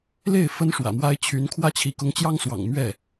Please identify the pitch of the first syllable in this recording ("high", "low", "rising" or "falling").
falling